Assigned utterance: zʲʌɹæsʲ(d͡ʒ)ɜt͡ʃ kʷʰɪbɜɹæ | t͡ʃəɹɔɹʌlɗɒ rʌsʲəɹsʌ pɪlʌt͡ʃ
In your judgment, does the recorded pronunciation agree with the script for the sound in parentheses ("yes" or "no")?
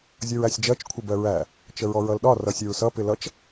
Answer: yes